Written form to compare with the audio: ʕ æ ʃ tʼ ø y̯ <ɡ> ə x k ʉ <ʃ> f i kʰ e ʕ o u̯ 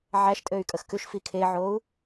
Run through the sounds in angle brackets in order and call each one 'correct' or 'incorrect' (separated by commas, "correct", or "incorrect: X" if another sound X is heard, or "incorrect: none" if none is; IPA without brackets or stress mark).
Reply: incorrect: kʼ, correct